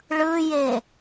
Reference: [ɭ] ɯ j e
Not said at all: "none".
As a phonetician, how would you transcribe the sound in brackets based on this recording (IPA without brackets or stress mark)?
ɭ